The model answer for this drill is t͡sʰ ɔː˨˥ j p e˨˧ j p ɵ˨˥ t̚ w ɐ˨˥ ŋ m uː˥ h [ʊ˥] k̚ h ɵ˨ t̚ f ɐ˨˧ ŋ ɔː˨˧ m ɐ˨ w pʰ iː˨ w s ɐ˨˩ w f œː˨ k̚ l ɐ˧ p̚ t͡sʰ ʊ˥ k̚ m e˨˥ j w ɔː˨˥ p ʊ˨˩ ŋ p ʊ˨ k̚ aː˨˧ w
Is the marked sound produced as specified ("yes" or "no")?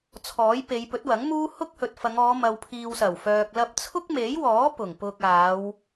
yes